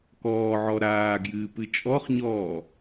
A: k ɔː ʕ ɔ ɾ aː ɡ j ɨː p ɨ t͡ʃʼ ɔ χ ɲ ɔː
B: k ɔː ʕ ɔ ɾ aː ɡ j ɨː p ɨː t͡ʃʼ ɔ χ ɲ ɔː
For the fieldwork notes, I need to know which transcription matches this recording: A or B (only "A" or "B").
A